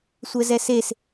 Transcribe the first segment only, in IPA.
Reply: sʷ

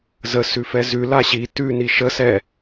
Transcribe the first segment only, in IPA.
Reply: z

